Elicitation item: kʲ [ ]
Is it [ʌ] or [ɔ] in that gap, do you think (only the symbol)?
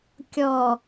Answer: ɔ